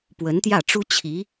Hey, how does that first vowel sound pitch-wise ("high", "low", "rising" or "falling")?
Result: rising